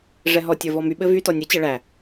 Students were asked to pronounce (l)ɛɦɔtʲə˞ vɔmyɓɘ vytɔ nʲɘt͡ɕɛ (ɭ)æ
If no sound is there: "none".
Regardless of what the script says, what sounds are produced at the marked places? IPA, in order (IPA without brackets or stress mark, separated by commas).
ʐ, ɭ